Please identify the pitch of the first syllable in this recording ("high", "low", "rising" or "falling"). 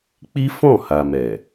high